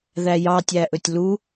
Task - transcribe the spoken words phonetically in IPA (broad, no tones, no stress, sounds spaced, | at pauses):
ð æ j ɑ tʲ æ ʔ ɵ tʲ l u